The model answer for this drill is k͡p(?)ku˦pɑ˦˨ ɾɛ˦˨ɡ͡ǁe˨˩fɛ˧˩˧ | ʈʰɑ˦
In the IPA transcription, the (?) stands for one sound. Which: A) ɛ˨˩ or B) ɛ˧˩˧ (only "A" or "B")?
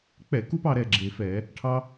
B